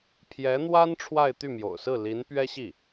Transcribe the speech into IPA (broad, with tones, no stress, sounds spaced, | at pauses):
pʰ j ɛ˧˥ n̪ w a˥ n ʈ͡ʂʰ w a˥˧ ɪ̯ t̪ y˥˩ m j o̰˨˩ ʊ̯ s ɹ̩˥˩ l i˧˥ n p ɥ ɛ˥ ɕ i˥˩